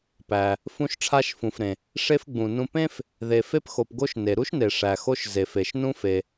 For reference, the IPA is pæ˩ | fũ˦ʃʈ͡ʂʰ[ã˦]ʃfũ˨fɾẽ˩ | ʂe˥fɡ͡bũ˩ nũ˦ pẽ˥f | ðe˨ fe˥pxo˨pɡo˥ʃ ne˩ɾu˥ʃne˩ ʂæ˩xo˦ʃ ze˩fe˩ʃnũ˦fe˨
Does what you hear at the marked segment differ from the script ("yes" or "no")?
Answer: yes